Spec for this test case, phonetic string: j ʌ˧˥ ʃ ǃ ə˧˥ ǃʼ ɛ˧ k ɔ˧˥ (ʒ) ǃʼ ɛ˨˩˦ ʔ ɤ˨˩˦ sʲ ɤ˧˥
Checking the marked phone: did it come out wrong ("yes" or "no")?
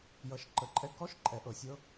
yes